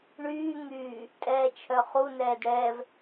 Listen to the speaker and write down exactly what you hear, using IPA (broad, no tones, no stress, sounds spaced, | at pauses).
ɳ yː ŋ yː | tʼ ɛː t͡ʃʰ œ χ u n ɛː d ɽ ɛː v